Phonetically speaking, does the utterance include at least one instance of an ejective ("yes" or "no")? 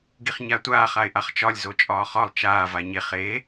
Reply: yes